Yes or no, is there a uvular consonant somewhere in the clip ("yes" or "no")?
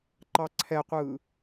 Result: yes